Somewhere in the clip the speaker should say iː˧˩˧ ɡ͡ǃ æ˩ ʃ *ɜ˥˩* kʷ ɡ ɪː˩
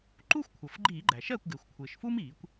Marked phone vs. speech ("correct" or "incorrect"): correct